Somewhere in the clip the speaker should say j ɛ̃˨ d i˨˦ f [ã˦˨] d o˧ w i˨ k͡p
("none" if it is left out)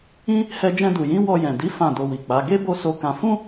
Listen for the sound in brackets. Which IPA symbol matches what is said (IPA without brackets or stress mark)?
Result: ã˦˨